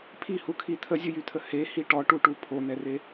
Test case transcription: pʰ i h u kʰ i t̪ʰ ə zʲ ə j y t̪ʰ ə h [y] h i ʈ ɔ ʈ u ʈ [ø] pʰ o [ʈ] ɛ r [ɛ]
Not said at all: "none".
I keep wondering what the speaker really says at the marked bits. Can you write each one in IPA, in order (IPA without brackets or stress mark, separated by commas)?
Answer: e, u, n̪, e